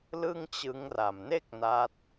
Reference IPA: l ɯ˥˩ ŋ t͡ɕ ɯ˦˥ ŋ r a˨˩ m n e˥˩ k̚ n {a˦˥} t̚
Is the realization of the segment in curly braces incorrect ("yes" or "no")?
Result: no